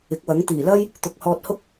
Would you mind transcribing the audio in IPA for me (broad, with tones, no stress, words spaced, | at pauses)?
ɪ˨˥k̚wɐ˨˥ŋ t̪iː˨˩lɐ˥j | t̪ʊ˨˥k̚hɔː˧t̚hʊ˥k̚